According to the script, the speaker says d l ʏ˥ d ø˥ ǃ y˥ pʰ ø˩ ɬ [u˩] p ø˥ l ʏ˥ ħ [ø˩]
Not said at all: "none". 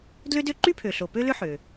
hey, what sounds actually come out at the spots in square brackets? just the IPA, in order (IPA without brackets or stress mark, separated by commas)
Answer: o˩, ø˩